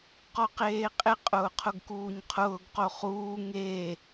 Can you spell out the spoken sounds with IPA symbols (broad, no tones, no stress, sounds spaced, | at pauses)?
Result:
q ɔ q eː qʼ ɪ qʼ ʊː qʰ ʊ ɡ k uː ɲ qʰ ʊː ɡ q o χ uː ŋ e